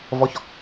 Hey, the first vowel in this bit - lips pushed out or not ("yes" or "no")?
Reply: yes